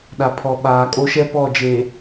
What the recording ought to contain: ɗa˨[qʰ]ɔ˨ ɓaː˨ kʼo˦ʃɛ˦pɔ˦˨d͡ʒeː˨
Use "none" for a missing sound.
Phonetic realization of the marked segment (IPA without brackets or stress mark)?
pʰ